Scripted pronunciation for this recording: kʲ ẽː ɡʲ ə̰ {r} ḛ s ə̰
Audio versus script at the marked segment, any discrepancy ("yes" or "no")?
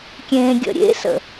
yes